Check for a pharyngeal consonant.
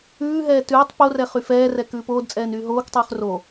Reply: absent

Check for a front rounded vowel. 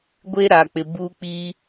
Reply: absent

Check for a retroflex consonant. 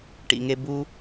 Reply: present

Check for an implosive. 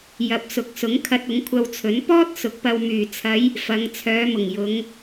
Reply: absent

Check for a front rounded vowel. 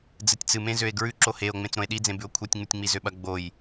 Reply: present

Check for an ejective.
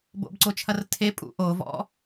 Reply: present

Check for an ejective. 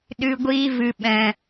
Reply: absent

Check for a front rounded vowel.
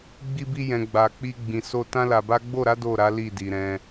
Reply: absent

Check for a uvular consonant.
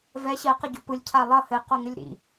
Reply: present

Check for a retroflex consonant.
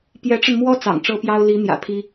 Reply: present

